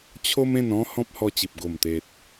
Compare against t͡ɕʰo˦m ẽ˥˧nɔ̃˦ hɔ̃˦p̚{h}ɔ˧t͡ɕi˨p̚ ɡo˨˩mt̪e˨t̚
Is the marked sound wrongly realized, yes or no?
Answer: no